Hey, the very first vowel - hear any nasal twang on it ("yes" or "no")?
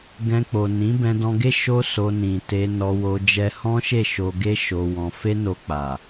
yes